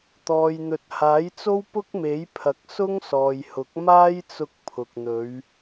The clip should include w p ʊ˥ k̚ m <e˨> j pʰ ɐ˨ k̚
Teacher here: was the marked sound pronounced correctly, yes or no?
no